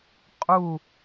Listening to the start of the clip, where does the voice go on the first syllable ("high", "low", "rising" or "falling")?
falling